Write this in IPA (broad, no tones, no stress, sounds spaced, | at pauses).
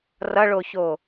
r ʌ ɭ o ç o